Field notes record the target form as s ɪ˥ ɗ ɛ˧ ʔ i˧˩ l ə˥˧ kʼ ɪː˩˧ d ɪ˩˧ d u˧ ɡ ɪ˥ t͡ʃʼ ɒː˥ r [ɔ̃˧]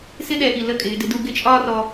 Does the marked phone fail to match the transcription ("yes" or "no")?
yes